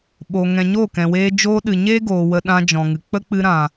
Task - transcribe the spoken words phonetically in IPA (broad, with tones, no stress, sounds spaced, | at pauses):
ɓ o˨ ŋ ɛ̃˨ ɲ o˦˨ k ɛ̃˨ w eː˧ d͡ʒ oː˧ ɗ ɨ˨ ɲ eː˦ ɡ oː˨ w ə˧ ɗ ã˧ d͡ʒ ɔ̃˨ ŋ ɨ˨ k͡p ə˦ k͡p ɨ˧ ɾ ã˨